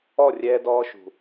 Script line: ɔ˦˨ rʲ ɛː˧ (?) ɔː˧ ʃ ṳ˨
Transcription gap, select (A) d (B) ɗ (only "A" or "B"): A